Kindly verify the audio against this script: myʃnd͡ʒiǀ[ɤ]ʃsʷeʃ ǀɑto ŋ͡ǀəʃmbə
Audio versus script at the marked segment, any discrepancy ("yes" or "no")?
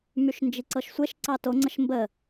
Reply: no